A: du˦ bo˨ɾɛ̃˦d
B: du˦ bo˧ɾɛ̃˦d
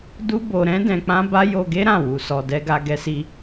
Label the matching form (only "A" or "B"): B